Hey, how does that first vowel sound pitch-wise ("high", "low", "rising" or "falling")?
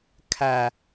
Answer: low